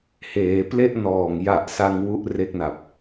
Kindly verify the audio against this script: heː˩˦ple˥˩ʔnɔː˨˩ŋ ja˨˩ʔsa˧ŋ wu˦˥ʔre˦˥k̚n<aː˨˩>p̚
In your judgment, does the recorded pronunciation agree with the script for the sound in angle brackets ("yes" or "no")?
no